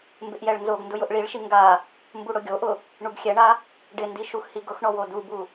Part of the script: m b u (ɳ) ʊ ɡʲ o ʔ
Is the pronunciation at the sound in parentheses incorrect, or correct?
incorrect